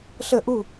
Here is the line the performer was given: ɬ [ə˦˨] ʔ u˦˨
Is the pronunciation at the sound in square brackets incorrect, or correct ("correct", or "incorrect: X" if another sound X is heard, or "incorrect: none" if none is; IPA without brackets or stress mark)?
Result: correct